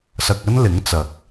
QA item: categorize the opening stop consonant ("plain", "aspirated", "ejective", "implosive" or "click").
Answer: plain